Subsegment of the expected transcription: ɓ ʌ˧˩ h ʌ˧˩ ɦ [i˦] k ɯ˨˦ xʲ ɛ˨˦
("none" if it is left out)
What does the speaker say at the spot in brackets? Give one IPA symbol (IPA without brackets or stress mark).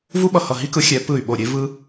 i˦